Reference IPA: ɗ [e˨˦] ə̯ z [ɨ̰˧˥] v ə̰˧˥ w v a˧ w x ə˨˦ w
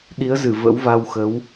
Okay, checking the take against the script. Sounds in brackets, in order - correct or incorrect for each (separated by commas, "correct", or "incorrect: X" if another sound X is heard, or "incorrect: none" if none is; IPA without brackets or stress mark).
incorrect: i˨˦, incorrect: ɨ˧˩